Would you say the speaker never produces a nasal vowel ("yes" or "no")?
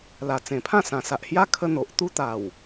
no